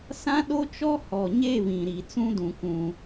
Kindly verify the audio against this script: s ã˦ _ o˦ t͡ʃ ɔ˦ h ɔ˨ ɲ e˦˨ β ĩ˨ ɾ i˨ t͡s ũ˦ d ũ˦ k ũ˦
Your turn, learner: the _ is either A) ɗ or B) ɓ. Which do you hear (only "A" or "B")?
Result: A